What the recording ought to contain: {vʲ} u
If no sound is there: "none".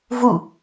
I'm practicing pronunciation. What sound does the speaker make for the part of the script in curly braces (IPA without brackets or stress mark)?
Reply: v